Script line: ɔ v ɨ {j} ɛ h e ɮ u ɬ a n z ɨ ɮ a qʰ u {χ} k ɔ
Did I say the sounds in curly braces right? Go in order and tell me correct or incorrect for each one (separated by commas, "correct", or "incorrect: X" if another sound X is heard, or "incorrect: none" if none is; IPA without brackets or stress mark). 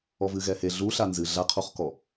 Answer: incorrect: ɣ, correct